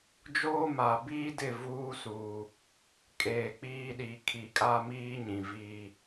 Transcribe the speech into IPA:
d͡ʒoː˦ma˨ biː˦dɪ˦˨ vuː˦suː˨ | kʼeː˨k͡piː˦ɗi˨˦ kʰi˨kʼa˦miː˦ ɲĩ˨viː˦

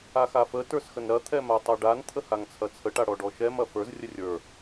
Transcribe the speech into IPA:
axafə tə˞sxənɾɐ t̪ʰɛmatˤɛɖan t̪ʰəhaŋt͡sʰɐt͡sʰə ʈaɽɔɖɔʃɛm ɐfə˞z rʲərʲə˞

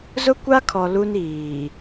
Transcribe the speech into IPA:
zʊ˦kʷa˦kʰɔ˨ lu˦niː˨

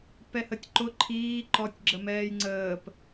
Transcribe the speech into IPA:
pɛhətʲǃʊ ǃʰiː ǃɔtʲ ɡ͡ǁəmɛːjŋ͡ǀəːp

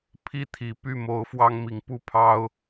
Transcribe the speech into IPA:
pʰi˥˨ t̪ʰi˨˩ py˥˨mo˨˦ʊ̯fwɑ˦ŋ mi˨˦ŋ pu˥˨pʰɑ˦ʊ̯

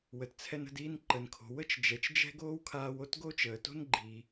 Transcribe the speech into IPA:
wə˩tt͡sʰɛ˧n ə̤˧diː˧n ǃə˩nkʰo̤˩ wə˥t͡ʃ d͡ʒɛ˩t͡ʃd͡ʒɛ̤˥ɡoː˥wkʰaː˧w o˥tɡo˥ t͡ʃəː˩to̤˥n ɡ͡ǃiː˩

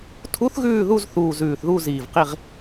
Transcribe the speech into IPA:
tʰu˧˥θɣʉː˦˨ðu˦˨zθuː˨˩ zʉː˨˩θðu˦˨ziː˨˩vqi˦˨ʁ

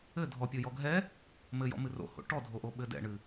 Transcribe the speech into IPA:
ɘ dʱɔpʲojɔ ɡʱɛ | mɘjɔ̰mɨ ro̰ho̰ ʈɔdʱoʔoɓɘ dɛ̰ɳɨ

